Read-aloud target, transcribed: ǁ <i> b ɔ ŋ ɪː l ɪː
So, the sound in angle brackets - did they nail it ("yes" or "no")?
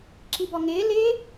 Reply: yes